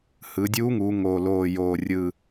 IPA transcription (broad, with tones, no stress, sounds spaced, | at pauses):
h ɯ˩˧ dʲ uː˧˥ ŋ uː˩˧ ŋ oː˨˩ l oː˨˩ j oː˨˩ rʲ ɯ˨˩